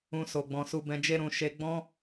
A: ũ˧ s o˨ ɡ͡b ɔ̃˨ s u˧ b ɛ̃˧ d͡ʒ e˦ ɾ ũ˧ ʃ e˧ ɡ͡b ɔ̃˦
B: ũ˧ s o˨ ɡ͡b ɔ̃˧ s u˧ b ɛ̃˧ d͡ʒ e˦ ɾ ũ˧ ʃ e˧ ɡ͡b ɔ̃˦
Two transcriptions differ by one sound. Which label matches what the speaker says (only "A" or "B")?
A